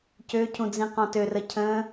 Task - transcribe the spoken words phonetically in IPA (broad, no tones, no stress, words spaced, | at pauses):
cøcʰũd͡zĩ qɔ̃tørə cʰə̃